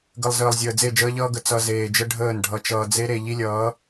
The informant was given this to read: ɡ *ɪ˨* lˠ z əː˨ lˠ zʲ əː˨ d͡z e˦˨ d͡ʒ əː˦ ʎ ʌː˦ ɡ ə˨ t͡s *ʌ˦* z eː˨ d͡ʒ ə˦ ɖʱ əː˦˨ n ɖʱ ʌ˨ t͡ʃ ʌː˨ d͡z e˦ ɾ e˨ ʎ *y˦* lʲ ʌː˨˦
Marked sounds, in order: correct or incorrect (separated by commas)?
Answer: incorrect, incorrect, incorrect